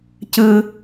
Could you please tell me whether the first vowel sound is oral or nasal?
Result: oral